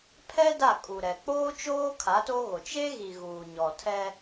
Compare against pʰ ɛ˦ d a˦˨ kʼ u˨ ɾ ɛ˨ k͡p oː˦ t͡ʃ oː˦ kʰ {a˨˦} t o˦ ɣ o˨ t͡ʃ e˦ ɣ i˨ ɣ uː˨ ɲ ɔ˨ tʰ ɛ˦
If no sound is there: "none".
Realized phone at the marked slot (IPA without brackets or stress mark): a˨˦